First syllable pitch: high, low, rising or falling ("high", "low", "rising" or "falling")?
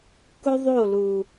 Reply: high